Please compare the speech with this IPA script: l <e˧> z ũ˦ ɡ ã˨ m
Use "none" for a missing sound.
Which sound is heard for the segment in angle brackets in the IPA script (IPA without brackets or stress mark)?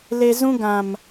e˧